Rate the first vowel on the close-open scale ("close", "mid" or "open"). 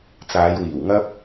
open